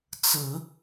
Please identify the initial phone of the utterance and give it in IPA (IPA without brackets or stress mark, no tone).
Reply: t͡s